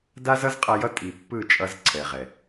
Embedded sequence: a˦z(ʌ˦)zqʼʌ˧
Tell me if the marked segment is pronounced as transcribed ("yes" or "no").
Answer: yes